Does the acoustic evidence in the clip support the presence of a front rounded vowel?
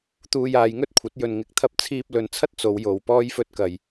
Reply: no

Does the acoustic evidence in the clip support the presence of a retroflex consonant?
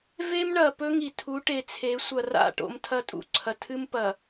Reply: yes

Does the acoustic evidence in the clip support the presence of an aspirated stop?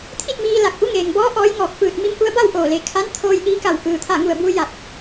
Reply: yes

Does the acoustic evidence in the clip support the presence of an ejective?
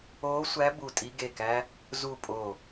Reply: yes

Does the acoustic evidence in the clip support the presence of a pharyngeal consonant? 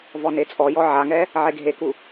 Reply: yes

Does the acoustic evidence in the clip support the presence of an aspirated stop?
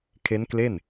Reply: yes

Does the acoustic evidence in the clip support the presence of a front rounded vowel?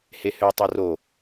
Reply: yes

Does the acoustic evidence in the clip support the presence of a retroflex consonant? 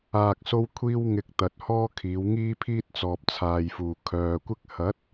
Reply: no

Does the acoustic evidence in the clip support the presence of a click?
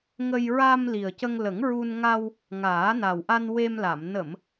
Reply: no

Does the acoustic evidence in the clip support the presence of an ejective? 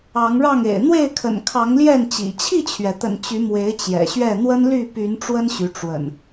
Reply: no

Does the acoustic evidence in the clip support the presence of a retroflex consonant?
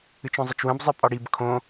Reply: yes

